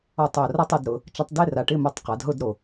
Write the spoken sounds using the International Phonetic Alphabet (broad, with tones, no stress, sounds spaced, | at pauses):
ɔ˧˩ tˤ o˧˩ r a˧ tˤ ʊ˩˧ d ɾ ʊ˩˧ | t͡ʃ a˧ tˤ d e˧˥˧ r a˩˧ ʈ ɪ˧˥˧ m o˧ tˤ q a˩˧ d ɦ ʊ˥˧ d ɾ o˧˩